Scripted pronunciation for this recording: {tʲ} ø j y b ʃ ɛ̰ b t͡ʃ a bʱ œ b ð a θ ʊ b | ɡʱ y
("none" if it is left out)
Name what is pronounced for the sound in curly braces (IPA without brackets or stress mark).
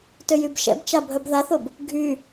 t